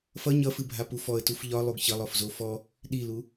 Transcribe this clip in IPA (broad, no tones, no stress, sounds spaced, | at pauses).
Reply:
f ʌ ɲ ʌ f ɨ bʱ a p u f ɔ ə̯ t u f ʎ ɒ lˠ u ɡ ç ʌ lˠ ɔ f z o f ɔ | ɗ i l u